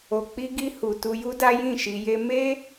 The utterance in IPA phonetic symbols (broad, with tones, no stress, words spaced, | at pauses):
o˨k͡pi˧ɡi˧ hu˨tu˧ju˦da˦ jĩ˦˨ʃi˧je˦ me˦